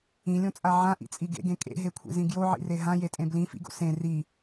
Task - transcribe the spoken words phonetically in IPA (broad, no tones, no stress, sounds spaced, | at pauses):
ĩ lʲ õ t͡sʼ a ʕ ã ʔ ḭ t͡sʼ i ɡ ḛ ɡ ẽ kʼ ḛ ɦ e kʷʰ ḭ z ĩ ɡ j o ʕ ḭ r e ɦ ã j e tʼ ẽ b l ĩ f ḭ ɡ o̰ s ẽ r i